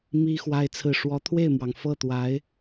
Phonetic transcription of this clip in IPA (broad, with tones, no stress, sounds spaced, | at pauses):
m i˥ x w a˥ ɪ̯ t͡sʰ ɹ̩˥˩ ʂ w ɔ˧˥ t̪ʰ w e˥˩ ɪ̯ m w ɑ˩ ŋ f ɤ˥˩ t̪ w a˧˥ ɪ̯